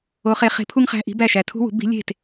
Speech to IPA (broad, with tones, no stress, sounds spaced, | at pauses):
o˧˥ χ e˧˥ χ e̤˧˥ pʰ u˥ ŋ χ æ̤˧˥˧ ʔ i̤˧˥ b æ˥˩ ʃ æ˨ tʰ ṳ˥ w ṳ˩˥ b i̤˧˥ lʲ e̤˥˩ t